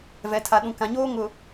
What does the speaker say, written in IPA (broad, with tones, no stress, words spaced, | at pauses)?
vɛ˨tʰa˨ɗũ˨kã˨ ɲoː˦ŋʊ˨